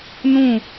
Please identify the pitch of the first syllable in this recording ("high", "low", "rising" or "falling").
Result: falling